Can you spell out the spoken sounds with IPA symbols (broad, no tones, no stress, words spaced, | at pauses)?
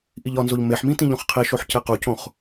ʔiʎɒnzoʎ meħmĩ tĩʎõχqʰiʃoħ cequcõχ